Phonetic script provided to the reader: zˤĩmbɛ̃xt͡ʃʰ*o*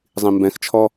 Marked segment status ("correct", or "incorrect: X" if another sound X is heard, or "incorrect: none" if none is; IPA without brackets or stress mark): incorrect: ɔ